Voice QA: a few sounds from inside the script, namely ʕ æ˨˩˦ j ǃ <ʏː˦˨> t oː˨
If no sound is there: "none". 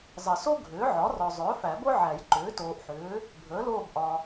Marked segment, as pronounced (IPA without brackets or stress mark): ʏː˩˥